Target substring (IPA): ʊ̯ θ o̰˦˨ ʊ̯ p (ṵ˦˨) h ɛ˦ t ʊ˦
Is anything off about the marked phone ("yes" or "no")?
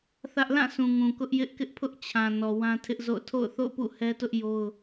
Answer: no